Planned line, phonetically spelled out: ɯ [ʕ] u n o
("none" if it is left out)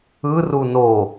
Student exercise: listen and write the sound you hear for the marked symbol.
r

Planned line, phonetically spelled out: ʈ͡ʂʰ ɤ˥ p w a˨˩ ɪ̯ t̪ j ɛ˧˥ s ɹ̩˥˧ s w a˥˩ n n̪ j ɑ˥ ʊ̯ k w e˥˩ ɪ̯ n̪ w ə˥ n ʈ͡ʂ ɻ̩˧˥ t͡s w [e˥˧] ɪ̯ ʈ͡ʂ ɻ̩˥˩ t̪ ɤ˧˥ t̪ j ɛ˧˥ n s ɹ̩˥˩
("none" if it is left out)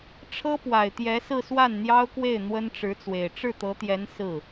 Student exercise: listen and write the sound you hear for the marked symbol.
e˨˩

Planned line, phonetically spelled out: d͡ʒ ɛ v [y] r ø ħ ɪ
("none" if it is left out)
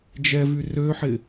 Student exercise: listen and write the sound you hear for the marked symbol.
y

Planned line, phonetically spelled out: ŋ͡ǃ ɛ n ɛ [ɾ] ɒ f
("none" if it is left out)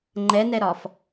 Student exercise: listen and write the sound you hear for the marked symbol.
ɾ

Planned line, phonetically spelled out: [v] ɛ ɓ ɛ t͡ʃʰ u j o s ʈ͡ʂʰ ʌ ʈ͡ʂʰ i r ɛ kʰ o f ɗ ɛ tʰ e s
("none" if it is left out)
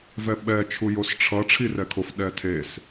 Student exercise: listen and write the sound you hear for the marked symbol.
v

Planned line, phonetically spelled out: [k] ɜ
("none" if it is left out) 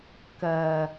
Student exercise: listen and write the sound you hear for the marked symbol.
k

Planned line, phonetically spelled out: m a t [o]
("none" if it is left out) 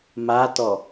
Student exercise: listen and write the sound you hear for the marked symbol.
ɔ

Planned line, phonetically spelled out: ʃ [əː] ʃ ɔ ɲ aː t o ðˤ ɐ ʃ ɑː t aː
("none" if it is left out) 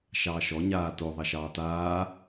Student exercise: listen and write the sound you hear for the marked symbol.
ɑː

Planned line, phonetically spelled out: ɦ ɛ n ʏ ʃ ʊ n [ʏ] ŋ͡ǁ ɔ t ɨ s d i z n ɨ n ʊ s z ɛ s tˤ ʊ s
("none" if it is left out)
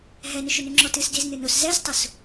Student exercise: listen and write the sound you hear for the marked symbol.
ʏ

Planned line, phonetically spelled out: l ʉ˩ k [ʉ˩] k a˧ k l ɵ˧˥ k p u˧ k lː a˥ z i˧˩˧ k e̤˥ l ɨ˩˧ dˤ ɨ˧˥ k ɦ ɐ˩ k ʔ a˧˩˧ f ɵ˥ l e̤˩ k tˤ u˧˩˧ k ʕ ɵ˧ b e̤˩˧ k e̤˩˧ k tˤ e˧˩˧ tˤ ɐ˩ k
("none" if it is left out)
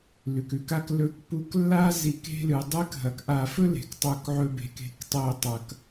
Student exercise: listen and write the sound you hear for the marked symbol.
ʉ˩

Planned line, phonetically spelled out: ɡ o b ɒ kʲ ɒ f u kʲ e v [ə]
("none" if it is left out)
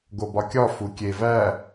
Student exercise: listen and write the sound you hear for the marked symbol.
æ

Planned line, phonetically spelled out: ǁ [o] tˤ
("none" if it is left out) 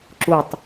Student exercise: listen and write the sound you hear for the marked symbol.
u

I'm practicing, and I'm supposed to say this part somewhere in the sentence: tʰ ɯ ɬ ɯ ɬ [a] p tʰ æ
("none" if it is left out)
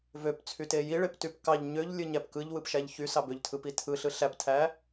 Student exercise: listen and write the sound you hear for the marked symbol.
æ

